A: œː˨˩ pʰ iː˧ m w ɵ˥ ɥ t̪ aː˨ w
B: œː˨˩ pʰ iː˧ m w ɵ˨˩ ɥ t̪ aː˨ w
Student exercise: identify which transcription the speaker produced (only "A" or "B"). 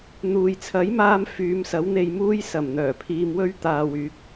A